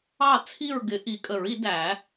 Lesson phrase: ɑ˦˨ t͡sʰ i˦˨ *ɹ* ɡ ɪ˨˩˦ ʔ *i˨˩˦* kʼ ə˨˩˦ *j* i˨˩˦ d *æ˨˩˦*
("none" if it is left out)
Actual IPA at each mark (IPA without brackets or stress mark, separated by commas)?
ɹ, i˨˩˦, ɹ, æ˨˩˦